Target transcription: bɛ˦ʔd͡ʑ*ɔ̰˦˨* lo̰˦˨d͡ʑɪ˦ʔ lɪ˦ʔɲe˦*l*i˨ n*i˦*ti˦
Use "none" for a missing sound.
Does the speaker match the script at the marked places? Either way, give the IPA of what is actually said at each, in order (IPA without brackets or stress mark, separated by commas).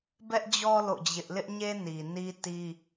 ɔ˦, n, i˦